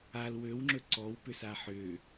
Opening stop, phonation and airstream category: click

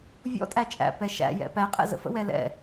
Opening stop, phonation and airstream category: ejective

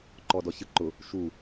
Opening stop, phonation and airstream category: click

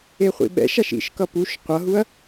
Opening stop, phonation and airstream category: implosive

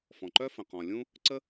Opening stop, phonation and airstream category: click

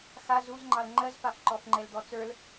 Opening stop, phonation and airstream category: click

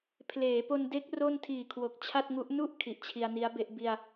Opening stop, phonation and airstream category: aspirated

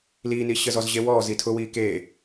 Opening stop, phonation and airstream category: aspirated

